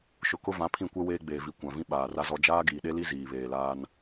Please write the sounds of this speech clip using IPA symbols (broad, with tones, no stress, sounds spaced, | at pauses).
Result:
ʃ ʊ˨ k ʊ˦ v ã˨˦ pʰ ĩ˦˨ kʷ ɛ˦ w eː˦ ɡ͡b eː˨ v i˨ kʷ ã˨ v ĩ˦ ɓ aː˨ r a˦ z ɔ˦ d͡ʒ aː˦ ɡ iː˨ ɗ e˦ l i˦ z iː˨ β eː˨ l aː˦ n